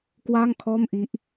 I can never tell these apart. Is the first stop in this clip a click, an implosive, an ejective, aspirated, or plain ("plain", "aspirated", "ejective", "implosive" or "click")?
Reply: plain